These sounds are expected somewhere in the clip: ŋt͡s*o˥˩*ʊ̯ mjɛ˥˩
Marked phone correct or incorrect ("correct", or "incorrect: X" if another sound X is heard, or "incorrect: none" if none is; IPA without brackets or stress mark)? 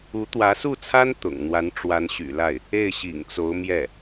incorrect: o˧˥